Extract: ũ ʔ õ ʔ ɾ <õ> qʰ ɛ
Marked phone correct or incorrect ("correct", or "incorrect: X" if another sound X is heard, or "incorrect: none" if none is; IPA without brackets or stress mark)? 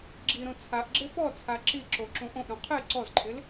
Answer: correct